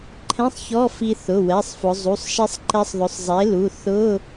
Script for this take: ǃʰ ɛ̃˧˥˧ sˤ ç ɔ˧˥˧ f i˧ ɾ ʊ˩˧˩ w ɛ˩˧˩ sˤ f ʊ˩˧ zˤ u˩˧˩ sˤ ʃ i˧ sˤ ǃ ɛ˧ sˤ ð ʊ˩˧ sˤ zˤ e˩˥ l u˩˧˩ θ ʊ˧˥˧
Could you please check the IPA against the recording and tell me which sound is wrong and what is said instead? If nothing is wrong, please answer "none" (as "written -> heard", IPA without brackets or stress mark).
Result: ɾ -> θ